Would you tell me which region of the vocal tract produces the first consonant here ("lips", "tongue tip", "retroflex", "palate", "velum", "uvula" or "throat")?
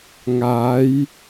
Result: velum